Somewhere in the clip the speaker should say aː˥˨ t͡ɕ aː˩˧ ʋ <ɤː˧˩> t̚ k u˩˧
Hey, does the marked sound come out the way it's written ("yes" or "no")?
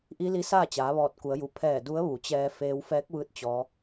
no